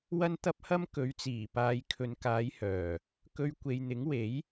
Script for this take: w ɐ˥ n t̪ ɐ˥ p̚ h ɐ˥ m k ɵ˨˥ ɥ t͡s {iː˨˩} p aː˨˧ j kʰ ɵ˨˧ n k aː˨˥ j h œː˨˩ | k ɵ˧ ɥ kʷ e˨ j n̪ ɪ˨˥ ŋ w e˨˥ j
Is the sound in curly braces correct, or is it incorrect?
correct